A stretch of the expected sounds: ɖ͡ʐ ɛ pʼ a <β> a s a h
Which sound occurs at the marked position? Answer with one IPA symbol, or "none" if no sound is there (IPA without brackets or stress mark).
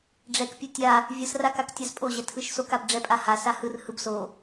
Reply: h